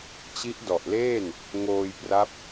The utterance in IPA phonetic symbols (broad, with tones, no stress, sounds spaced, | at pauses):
t͡ɕ i˦˥ ʔ d ɔ˨˩ ʔ l eː˥˩ n | ŋ oː˧ j p r a˦˥ p̚